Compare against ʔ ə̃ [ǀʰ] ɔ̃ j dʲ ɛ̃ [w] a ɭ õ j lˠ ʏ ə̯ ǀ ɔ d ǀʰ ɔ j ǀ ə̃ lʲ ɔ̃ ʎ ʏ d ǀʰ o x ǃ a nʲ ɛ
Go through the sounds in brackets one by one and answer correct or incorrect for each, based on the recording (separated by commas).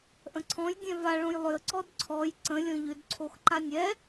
correct, incorrect